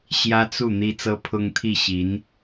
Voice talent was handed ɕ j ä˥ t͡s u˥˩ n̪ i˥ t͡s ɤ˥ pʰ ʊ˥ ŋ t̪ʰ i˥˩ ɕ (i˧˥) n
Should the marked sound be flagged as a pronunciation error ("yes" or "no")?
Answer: no